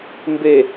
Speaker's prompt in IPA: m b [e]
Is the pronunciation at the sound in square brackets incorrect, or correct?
correct